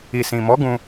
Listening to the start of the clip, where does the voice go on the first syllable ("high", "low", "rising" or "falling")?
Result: low